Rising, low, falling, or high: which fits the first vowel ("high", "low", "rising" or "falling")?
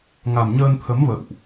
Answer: low